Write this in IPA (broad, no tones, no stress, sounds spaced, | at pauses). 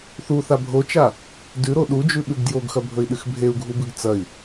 θ u θ a bʱ o t͡ʃ a | d ʉ ɾ o ɗ u d͡ʒ ʉ ɓ ʉ ɡ d j o ɡ x ɐ bʱ ɵ i̯ ɗ ɨ x bʱ e u̯ ɡʱ u b ɨ ɡ t͡s ɐ i̯